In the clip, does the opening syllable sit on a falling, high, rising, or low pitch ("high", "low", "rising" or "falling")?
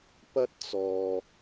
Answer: high